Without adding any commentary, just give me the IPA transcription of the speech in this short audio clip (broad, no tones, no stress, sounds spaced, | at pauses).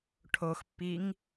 ʈʰ o x pː i ŋ